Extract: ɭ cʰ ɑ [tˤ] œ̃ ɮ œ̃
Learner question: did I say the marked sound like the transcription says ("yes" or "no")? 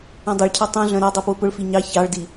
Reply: yes